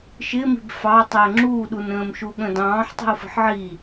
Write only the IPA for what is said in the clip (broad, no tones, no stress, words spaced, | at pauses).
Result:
ʃɪmi̤b fɑ tˤəːŋ͡ǁuːɗun ə̃ːmʃuɠə̃dɑ̃ːħ tˤi̤o̯fə̤ħʕi